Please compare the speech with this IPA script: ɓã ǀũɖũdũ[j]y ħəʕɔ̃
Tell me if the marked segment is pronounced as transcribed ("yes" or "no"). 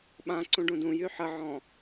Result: yes